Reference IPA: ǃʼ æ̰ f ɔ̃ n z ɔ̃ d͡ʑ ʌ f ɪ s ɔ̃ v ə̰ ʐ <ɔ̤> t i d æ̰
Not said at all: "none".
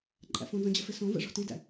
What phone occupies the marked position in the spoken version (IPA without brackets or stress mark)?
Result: ɔ̤